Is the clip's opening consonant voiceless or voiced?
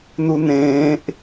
voiced